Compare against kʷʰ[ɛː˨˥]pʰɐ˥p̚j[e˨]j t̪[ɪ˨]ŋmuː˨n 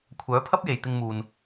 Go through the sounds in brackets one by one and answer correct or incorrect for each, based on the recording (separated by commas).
incorrect, correct, incorrect